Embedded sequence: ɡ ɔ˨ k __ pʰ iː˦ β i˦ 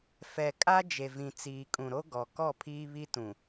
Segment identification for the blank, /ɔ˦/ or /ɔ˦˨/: ɔ˦˨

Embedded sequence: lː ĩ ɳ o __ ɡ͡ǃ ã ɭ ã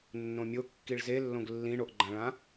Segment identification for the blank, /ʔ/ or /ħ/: ʔ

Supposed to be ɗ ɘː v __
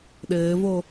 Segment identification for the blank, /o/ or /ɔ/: o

